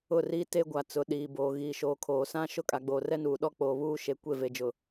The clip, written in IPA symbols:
ʊ˦˨ r iː˦ t e˦ ɡʷ a˨ t͡s ʊ˨ ɗ iː˨ b oː˨ ɣ iː˨ ʃ oː˨ kʰ oː˨ s ã˦ ʃ ʊ˦˨ kʼ a˨ ɡ͡b oː˨ r ɛ˦ n uː˨ ɗ ɔ˦ k͡p oː˨ β uː˦ ʃ e˨ kʷ e˦˨ v e˨ d͡ʒ ʊ˨

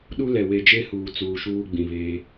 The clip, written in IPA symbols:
ɗ u˦ l ɛ˨ w e˨ d͡ʒ e˦ h uː˨ t͡s uː˨ ʃ uː˦ ɡ͡b ĩ˨ β eː˦

